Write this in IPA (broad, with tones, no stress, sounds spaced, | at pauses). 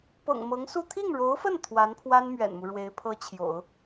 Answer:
p ɤ̰˨˩ ŋ m ɤ˧˥ ŋ s u˥˧ t̪ʰ i˥˩ ŋ ɻ o˧˥ ʊ̯ f ə˥˩ n t̪ʰ w a˧˥ n pʰ w a˥ n m ɥ ɛ̰˨˩ n m u˦ ɻ w e˧˥ ɪ̯ pʰ ɤ˥ t͡ɕʰ j o̰˨˩˦ ʊ̯